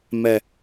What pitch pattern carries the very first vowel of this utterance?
low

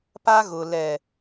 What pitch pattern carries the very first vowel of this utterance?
high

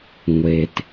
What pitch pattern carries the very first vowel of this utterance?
low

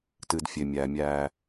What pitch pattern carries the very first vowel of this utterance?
low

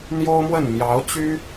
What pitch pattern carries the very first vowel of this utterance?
high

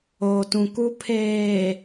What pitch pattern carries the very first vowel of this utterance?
low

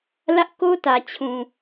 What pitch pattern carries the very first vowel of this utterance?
high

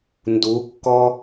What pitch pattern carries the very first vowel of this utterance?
rising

